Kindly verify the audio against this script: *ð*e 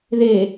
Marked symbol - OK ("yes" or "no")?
yes